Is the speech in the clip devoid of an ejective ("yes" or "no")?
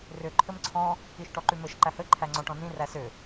yes